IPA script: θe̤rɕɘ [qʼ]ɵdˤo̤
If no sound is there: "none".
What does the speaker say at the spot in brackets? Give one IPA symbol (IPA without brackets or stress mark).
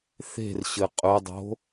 qʼ